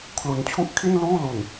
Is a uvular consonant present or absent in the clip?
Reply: absent